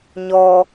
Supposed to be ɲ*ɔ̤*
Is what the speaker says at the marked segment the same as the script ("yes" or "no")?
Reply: no